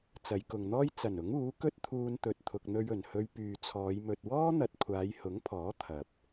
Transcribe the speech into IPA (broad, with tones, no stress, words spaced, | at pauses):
t͡sɐ˨˧jkʊ˨ŋn̪ɔː˥j t͡sɐ˨˩nʊ˨˥ŋ uː˨˥kɵ˥t̚t̪ʰuː˧nt̪ɵ˨t̚ t̪ʰʊ˨k̚n̪ɵ˧ɥɵ˨˩nhɵ˧ɥ pyː˨t͡sʰɔː˨˧j mɵ˨t̚wɔː˥n̪ɐ˨t̚ kʷʰaː˨˧jhʊ˨˥ŋpʰɔː˨˥ t̪ʰɐ˨p̚